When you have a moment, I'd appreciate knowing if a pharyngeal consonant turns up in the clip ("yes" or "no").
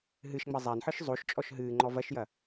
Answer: yes